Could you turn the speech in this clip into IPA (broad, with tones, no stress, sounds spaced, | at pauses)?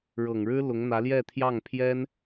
ɻ ɤ˨˩ ŋ ɻ ɻ̩˥ l ʊ˧˥ ŋ n̪ ä˧˥ l j ɛ˥˧ t̪ʰ j ɑ˥˩ ŋ pʰ j ɛ˥ n